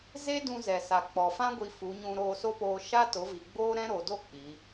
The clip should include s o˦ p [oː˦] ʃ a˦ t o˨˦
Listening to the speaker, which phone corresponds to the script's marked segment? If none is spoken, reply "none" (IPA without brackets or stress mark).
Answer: oː˧